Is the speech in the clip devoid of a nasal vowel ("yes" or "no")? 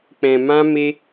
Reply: no